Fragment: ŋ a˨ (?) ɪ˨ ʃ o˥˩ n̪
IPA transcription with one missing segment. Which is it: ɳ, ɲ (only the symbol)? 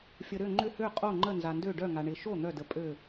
ɳ